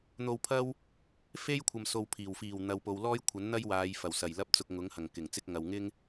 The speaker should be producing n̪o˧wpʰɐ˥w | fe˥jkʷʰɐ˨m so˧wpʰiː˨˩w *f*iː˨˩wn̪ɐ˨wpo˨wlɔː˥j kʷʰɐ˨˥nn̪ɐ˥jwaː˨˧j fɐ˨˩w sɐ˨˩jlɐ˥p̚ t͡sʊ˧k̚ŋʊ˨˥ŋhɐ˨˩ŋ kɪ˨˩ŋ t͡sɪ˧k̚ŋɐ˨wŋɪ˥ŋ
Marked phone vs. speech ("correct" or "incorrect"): correct